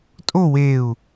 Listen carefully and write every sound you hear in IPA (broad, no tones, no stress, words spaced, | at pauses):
tʼo weu̯